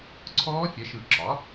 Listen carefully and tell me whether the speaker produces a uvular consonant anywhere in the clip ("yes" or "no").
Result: no